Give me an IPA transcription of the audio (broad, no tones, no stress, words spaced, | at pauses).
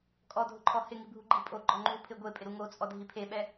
kʼɔdʱʊǃʰɔ hɪŋibʱu ɡ͡ǃipʼo ɡ͡ǃɔŋ͡ǃu pʰɪ ɡʷepʼɪɾu ŋot͡sʼɔ dʱipʰeɓɛ